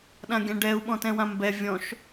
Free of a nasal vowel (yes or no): no